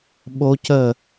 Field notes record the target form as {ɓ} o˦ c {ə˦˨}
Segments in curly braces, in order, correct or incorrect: correct, correct

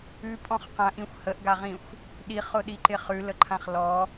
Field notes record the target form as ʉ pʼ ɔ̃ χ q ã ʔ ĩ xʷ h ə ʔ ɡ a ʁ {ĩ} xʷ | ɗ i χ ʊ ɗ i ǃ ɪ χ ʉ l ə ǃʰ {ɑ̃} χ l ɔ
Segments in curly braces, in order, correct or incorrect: correct, incorrect

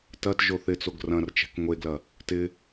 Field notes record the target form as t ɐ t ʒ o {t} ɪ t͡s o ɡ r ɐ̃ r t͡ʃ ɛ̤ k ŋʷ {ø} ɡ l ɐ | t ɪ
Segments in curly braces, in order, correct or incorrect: incorrect, incorrect

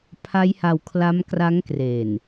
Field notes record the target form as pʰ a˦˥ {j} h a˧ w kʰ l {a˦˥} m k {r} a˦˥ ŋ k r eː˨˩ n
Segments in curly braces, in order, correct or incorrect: correct, correct, correct

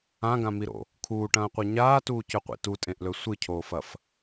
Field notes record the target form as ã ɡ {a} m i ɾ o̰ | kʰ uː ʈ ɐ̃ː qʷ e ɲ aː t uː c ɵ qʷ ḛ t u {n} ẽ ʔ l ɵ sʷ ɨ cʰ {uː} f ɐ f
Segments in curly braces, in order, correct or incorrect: incorrect, incorrect, incorrect

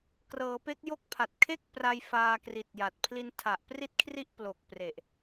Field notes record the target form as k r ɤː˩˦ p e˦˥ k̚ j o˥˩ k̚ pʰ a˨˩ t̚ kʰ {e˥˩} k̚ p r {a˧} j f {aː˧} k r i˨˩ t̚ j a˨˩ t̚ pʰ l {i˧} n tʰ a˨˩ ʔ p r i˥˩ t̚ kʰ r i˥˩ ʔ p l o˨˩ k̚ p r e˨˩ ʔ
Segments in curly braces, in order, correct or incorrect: correct, correct, correct, correct

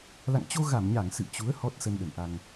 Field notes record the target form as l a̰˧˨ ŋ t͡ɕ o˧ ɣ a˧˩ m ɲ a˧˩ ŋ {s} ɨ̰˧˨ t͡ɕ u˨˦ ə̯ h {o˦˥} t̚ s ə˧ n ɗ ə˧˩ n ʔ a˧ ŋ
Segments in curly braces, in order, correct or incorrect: correct, incorrect

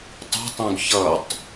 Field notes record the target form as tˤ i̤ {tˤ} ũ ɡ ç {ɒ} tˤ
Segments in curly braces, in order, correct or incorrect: correct, incorrect

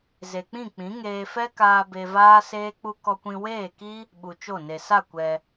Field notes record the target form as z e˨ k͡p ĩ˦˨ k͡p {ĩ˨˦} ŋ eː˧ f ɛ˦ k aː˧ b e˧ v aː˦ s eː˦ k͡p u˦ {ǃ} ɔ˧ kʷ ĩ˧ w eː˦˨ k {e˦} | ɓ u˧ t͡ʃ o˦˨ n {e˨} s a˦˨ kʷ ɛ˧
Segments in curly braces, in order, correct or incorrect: correct, incorrect, incorrect, correct

